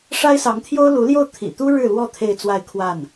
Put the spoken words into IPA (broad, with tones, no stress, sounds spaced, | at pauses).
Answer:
ʂ a˥ ɪ̯ s ɑ˧˥ ŋ t̪ʰ j o˥ ʊ̯ l u˧˥ l j o˥˩ ʊ̯ t̪ʰ ḭ˨˩ t̪ u˥ ɻ ɻ̩˥˧ l w ɔ˥˧ t̪ʰ e˥˧ ɪ̯ t͡s w a˥˧ ɪ̯ kʰ w a˥˩ n